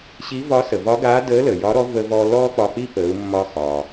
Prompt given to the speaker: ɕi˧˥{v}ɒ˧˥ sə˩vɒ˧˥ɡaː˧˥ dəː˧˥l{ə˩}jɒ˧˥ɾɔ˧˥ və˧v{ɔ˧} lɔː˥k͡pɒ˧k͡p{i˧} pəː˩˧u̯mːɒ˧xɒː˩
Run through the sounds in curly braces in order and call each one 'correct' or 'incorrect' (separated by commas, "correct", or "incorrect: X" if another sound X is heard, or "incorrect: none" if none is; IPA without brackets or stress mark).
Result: correct, correct, correct, incorrect: i˥